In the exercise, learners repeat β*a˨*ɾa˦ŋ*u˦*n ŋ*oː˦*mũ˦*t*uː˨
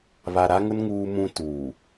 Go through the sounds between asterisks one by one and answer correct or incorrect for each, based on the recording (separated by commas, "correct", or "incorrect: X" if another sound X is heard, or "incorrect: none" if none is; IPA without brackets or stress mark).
correct, incorrect: ʊ˦, incorrect: uː˦, correct